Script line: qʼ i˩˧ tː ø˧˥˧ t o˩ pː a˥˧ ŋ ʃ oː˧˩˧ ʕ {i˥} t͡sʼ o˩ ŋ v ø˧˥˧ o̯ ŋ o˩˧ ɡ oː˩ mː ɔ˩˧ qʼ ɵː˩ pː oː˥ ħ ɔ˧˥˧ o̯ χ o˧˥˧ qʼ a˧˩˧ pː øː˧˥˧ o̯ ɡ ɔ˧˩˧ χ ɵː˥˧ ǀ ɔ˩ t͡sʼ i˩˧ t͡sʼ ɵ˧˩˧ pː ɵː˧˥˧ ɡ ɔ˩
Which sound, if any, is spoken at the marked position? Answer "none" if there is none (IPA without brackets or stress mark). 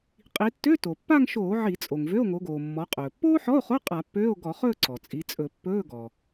i˧˩˧